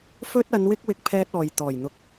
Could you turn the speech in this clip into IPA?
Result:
f ɵ˧ t̚ ɐ˨˧ n w ɪ˧ k̚ w ɪ˧ k̚ pʰ ɛː˧ t̚ ɔː˨ j t̪ ɔː˨˩ j n̪ ʊ˨ k̚

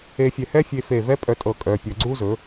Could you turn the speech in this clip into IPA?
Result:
e˧ fʲ ɛ˧˩ h ɛ˥ fʲ e˧ f e˧˩ v ɛ˥ pʼ œ˧˩ tʼ ɤ˧˩˧ kʼ œ˩˧˩ pʲ ɤ˧˩˧ ɡ͡ǀ u˥ z ɵ˩˥

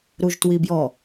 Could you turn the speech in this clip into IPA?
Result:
ɾ u ʒ t w i b j ɔ

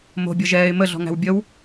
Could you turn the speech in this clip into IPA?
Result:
m o̤ bʲ ɤ ʒ ɛː ɪ̯ m ə ɮ ɔ̤ ŋ æ̤ w bʲ ə w

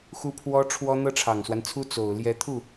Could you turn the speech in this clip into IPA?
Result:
x u˥ pʰ w ɔ˥ ʈ͡ʂʰ w ɔ˥ n̪ ɤ˥ ʈ͡ʂʰ ɑ˨˩ ŋ s w a˦ n t͡sʰ u˥ t͡s o˨˩ ʊ̯ l j ɛ˧˥ t̪ʰ u˥˩

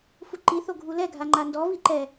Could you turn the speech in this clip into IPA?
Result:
f u ǃ i θ o ɡʱ u l ɛ ɡʱ a ŋ͡ǃ a n d ɔ v i ǃ ɛ

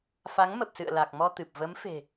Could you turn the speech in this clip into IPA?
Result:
f a˨˦ ŋ m ə˨˩ p̚ s ɨ̰˧˨ ə̯ l a˨˩ k̚ m ɔ˧ t̪ ɨ˨˩ p̚ v ə˨˦ m f e̤˨˩

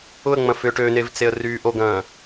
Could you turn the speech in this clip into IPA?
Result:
ʊ ə̯ ŋ͡m ɐ̃ f ʏ ʈ ø n e v t͡s e ə̯ r yː ʔ o ɡ ɐ̃ː

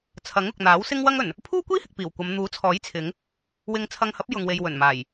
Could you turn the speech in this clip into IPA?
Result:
t͡sʰ ɐ˨˥ ŋ ʊ˨ k̚ n̪ aː˨˥ w s ɪ˥ ŋ w ɐ˥ ŋ ɵ˨˩ n | pʰ uː˥ kʷ iː˥ h ɪ˨ k̚ p iː˨˩ w kʷ ɐ˨˧ m n̪ uː˨˥ t͡sʰ ɔː˨˥ j t͡sʰ ɪ˨˧ ŋ | w ɪ˧ ŋ t͡sʰ ɐ˧ ŋ h ɐ˨˥ p̚ j ʊ˨ ŋ w e˨ j w ɵ˨˩ n m aː˨˩ j

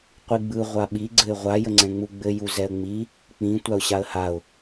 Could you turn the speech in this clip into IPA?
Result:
qʷ i ɡ͡b ɯ ʁʷ a ɓ i ɡ͡ǀ ɘ ɪ̯ ʁʷ a j ə ŋ͡ǀ ɛ̃ ŋ͡m u ɡ͡b ɘ j u z ɛ ə̯ ŋ͡m i | k͡p ĩ tʷ a ʊ̯ ɕ a ə̯ h a ʊ̯

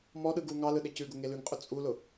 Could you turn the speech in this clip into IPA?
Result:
m ɔ ɗ ɯ ɡ u ŋ ɑ l ɯ ɗ e c ʉ ɡ ʊ ŋ e l ʉ ŋ qʼ ʊ t͡sʼ u l ʊ

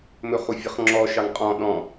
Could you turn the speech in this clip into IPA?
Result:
m ɵ χ u fʲ ʌ χ ŋ͡ǁ ɔ ʃ ɑ ŋ qʼ ɔ̃ ɗ ɔ̃

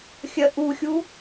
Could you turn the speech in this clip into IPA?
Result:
xʲ ɜ ʔ u xʲ u

